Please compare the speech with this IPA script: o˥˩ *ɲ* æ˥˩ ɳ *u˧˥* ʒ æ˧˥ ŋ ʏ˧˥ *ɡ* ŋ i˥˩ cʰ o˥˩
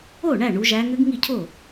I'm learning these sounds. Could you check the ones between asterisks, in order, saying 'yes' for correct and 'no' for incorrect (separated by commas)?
no, yes, yes